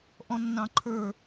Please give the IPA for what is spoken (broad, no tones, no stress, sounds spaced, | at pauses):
ʔ ɔ̃ nː ɑ̃ ǃʰ ə˞